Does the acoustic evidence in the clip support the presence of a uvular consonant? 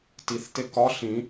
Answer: no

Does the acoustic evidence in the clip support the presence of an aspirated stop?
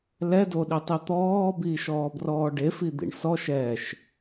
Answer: no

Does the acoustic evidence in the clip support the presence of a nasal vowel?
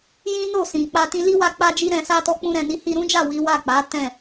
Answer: yes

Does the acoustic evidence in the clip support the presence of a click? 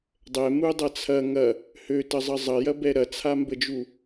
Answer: no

